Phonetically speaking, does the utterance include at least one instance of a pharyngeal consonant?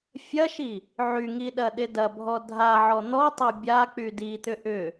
yes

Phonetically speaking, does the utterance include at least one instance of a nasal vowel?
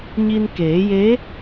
no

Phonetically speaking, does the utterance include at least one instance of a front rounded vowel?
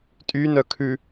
yes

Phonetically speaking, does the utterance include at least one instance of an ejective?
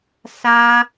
no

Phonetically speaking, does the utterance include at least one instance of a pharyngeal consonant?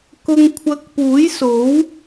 no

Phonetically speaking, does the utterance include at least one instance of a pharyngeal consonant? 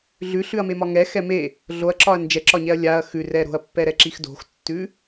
no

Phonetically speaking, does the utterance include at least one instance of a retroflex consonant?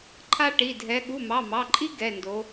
yes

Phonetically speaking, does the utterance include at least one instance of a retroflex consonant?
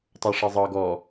yes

